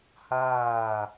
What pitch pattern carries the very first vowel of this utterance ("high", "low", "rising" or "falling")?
falling